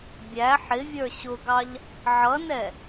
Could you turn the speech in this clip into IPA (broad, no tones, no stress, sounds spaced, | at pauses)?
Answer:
bʲ æ ħ ɪ vʲ ə˞ ɕ ʊ ɡ ɑ ʎ | ʕ ʌ n ɛ